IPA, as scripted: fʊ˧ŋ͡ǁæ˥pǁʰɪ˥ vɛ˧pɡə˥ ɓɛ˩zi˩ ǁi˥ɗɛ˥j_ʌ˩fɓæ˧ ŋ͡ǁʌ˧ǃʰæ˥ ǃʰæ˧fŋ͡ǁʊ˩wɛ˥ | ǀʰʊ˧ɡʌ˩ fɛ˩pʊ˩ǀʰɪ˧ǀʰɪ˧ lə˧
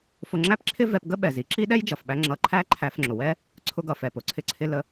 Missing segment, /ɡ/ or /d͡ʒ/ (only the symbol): d͡ʒ